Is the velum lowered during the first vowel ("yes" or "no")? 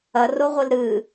no